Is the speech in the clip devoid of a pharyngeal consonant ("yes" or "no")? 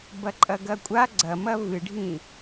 yes